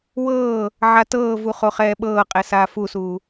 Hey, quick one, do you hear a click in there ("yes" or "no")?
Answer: no